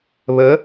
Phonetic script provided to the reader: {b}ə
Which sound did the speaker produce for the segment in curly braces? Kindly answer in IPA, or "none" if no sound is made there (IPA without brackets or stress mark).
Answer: β